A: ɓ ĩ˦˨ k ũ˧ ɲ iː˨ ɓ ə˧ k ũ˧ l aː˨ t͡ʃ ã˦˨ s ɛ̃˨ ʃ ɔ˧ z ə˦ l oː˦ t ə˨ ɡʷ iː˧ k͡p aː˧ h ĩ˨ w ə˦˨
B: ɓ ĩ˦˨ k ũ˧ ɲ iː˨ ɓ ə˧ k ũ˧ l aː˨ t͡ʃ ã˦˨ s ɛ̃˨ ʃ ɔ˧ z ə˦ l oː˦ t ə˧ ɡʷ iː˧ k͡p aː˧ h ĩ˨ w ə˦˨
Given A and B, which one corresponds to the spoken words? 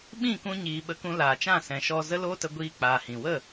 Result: B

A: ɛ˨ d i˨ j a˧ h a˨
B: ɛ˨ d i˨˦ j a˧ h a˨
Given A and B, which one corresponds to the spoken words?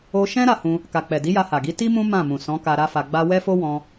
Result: B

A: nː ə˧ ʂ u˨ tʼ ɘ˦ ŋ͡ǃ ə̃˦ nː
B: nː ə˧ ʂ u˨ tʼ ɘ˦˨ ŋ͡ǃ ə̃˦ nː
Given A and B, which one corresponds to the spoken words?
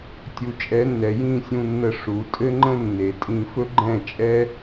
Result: A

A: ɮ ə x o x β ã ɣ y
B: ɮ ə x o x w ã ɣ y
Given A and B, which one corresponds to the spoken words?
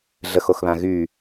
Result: A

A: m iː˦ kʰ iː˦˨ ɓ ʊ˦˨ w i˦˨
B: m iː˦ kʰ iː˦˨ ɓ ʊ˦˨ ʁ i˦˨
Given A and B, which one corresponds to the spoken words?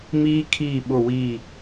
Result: A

